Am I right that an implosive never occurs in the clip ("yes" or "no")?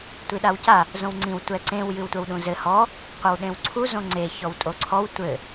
no